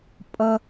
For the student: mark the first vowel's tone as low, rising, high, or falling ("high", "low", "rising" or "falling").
high